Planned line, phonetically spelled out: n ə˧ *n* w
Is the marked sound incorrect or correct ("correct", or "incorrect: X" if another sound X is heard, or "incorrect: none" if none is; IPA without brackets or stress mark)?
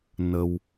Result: incorrect: none